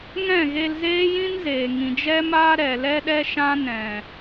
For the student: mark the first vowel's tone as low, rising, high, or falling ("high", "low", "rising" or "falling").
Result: falling